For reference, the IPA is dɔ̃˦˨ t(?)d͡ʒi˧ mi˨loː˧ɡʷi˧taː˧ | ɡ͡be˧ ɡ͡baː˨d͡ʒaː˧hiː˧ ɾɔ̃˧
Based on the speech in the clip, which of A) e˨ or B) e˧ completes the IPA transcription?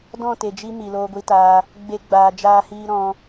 A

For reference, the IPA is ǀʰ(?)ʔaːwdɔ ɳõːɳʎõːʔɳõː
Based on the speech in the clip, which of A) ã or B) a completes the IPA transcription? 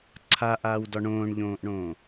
B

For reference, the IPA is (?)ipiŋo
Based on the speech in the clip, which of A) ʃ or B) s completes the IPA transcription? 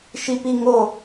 A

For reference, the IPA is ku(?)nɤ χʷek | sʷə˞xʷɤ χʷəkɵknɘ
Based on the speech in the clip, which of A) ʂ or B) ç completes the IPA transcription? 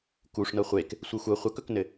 A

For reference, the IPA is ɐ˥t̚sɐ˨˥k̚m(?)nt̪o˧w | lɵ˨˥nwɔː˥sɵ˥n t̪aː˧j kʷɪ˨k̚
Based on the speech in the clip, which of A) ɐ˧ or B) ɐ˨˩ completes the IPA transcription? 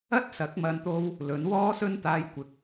A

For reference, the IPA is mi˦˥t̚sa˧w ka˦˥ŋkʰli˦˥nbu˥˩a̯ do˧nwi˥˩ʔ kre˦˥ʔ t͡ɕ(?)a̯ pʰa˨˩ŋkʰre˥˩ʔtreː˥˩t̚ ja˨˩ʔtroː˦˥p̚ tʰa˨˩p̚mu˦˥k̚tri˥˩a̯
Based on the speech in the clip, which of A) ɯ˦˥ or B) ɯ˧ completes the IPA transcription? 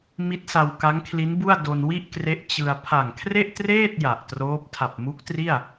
B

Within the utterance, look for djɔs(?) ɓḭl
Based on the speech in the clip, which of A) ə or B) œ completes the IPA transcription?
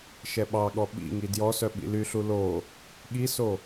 B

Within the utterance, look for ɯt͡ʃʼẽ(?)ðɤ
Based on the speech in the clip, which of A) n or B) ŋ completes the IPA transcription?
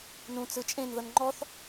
A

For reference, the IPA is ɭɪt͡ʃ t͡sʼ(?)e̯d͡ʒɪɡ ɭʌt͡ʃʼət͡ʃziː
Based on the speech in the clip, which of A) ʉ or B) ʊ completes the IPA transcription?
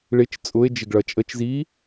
B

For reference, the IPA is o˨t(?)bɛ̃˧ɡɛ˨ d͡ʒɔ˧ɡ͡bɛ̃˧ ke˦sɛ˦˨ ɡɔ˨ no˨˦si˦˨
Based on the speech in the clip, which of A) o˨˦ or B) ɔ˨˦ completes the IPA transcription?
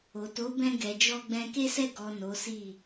A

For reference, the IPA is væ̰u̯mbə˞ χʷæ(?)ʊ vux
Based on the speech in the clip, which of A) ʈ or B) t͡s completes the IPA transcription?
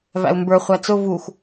B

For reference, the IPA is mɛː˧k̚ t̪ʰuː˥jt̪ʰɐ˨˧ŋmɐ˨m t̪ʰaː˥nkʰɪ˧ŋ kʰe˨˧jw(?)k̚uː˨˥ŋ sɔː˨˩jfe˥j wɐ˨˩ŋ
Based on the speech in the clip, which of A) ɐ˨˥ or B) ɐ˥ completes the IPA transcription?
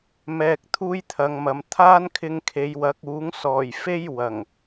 A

